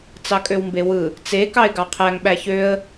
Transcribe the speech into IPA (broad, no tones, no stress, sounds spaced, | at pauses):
t͡s ɑ kʼ ø w m b e w ɯ | t͡s e k ɑ ɪ̯ ɡ ɑ qʰ æ ŋ ɓ æ ç ø ə̯